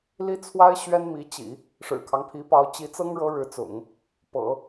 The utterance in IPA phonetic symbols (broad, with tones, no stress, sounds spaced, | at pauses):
l i˥ t͡sʰ w a˥ ɪ̯ ɕ ɥ ɛ˥ n m i˧˥ t͡ɕ ḭ˨˩˦ | ʂ ɻ̩˨˩ kʰ ɑ˦ ŋ pʰ i˧˥ p ɑ˧˥ ʊ̯ t͡ɕ i˧˥ t͡s ɤ˥ ŋ ɻ ɤ˧˥ ɻ ɻ̩˧˥ t͡s ʊ̰˨˩˦ ŋ | p ɤ̰˨˩˦